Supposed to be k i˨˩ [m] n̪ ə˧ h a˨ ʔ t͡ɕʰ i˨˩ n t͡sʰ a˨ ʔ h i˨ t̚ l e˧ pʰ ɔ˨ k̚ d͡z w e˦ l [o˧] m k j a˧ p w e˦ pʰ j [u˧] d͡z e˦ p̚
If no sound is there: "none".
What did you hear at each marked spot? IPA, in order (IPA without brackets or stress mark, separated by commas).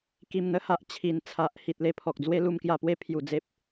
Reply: m, u˧, u˧